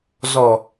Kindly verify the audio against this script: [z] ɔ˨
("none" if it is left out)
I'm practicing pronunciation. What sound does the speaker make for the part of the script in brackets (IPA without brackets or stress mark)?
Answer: z